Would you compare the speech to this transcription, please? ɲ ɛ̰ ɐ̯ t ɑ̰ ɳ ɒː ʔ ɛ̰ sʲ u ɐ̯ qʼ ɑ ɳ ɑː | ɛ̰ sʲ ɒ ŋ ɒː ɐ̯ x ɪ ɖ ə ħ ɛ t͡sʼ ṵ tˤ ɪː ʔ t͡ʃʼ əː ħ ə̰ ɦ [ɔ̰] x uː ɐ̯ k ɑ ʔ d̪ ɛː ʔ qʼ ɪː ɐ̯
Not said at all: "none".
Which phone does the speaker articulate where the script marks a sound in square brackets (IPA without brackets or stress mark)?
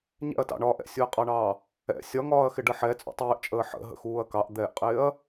ə̰